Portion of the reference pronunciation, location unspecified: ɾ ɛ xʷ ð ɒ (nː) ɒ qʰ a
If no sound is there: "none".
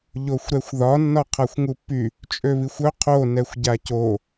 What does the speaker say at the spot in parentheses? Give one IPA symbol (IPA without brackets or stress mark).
nː